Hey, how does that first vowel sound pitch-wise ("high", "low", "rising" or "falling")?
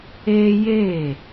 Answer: high